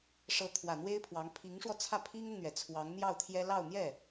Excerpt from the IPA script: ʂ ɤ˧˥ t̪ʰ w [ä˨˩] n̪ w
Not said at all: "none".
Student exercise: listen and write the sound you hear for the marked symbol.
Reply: ä˨˩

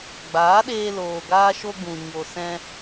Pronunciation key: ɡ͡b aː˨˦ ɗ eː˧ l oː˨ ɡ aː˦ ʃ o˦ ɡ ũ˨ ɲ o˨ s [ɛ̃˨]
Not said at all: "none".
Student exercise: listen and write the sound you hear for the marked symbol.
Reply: ɛ̃˧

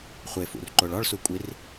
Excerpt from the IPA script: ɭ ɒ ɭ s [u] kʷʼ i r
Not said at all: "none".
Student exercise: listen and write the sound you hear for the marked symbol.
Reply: u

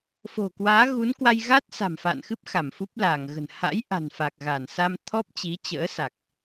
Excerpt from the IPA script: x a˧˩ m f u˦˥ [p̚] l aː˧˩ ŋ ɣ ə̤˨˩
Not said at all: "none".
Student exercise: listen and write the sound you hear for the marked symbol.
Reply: p̚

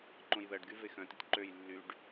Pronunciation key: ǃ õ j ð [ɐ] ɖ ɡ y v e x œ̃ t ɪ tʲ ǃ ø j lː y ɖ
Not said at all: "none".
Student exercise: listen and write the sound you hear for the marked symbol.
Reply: ɐ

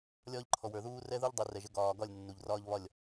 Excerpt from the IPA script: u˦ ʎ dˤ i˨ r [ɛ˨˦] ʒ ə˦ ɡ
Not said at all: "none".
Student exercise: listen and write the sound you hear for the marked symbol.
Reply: ɛ˨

